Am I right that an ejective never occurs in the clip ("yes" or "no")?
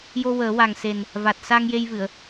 yes